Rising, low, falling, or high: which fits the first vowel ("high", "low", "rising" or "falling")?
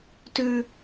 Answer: high